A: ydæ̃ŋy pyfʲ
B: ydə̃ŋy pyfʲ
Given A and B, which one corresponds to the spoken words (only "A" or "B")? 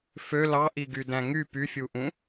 A